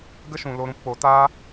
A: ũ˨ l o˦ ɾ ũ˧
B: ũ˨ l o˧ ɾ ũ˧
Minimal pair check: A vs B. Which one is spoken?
B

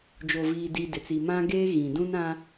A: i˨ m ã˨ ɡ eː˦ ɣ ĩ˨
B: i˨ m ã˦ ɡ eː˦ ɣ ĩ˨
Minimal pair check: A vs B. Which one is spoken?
B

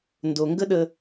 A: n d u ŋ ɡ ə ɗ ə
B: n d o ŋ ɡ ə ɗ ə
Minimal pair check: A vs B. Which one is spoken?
B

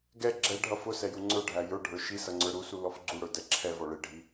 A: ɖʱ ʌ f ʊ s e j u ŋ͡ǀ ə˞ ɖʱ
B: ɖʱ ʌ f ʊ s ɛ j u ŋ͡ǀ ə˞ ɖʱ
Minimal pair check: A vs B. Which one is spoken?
B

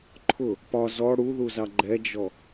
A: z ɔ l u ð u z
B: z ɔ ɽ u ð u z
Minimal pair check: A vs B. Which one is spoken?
B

